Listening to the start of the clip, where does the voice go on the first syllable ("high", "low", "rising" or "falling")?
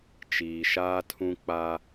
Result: low